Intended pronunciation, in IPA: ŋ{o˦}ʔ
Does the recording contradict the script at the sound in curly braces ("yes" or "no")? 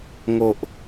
yes